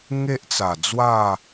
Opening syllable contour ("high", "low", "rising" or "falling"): high